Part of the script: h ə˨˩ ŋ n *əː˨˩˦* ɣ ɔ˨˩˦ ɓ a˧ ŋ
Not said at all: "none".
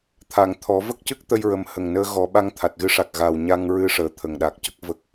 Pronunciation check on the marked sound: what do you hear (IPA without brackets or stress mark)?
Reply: əː˧